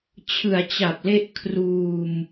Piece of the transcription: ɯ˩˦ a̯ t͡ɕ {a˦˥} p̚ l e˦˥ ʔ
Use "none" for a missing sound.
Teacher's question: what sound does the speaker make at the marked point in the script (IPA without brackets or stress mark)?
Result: a˨˩